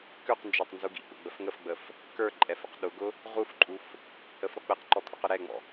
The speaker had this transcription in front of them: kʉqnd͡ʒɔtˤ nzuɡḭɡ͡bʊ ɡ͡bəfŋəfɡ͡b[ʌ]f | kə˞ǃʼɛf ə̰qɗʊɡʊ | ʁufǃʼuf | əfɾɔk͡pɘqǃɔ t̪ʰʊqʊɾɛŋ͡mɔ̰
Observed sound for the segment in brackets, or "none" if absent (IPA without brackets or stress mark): ə